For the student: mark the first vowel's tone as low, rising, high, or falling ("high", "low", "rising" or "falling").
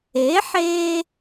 rising